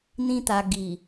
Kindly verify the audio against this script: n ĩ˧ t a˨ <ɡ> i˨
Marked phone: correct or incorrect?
correct